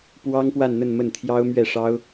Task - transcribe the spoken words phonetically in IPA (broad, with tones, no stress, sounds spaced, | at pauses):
p w ɑ˥ ŋ p w a˥˧ n n̪ ə˥˧ n m ə˥˩ n t̪ʰ j ɑ˥ ʊ̯ m ɥ ɛ˥˩ ʂ ɑ˥ ʊ̯